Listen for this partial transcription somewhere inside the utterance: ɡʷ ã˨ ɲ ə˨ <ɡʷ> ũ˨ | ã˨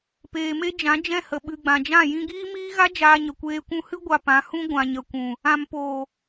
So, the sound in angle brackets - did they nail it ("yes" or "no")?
no